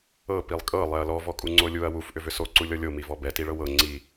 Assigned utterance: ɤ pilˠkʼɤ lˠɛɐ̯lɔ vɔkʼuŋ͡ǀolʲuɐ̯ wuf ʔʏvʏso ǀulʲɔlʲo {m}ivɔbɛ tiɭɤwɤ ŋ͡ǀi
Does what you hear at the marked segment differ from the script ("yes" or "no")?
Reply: no